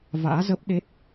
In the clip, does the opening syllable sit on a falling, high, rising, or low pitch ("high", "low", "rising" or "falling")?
rising